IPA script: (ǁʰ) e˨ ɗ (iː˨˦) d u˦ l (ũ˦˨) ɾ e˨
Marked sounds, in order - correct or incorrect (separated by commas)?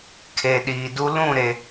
incorrect, incorrect, correct